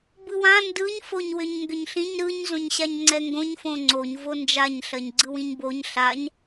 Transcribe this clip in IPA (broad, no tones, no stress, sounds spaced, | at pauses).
b ɯ w ã n d ɯ ɲ f o ɲ w ʏ ɲ ŋ ɡ ʏ ɲ ɬ ĩ ɲ ɾ ɯ ɲ z õ ɲ ɕ a ɲ ŋ͡ǀ ɛ ŋ ɡ õ ɲ f õ ŋ͡ǀ o ɲ v o n d͡ʒ a ɲ ɬ ɜ ɲ ɡ͡ǀ ɯ w ĩ ɲ b o ɲ ɬ a ɲ